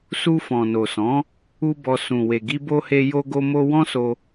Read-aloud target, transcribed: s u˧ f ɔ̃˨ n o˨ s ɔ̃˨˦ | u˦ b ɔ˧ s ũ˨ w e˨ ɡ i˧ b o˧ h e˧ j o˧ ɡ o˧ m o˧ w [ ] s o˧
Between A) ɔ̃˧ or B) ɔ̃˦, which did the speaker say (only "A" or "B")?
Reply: B